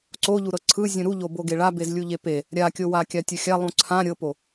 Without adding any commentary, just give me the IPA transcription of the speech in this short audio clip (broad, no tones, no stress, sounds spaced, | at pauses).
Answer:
ǀ o ʎ u ɾ ɤ ǀʰ ɯ zʲ ũ ɾ u ʎ o b o ɡ e ɭ a b e z lʲ u ʎ e p e | ɾʲ a kʲ o w a kʲ a tʲ u xʲ a lˠ ũ ǀʰ ã ɾʲ ɤ p o